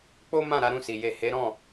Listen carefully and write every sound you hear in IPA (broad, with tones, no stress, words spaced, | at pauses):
k͡po˦mã˦˨ ɾa˨˦ɾũ˦˨si˨ je˨ he˨˦ ɾɔ̃˦˨